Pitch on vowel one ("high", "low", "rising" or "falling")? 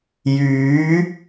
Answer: rising